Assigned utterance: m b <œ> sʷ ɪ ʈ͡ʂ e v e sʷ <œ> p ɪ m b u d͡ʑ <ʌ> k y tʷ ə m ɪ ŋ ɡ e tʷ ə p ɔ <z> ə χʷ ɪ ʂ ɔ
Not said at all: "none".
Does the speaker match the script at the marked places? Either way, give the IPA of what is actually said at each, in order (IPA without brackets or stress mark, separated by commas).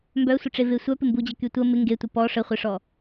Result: œ, œ, ə, ʂ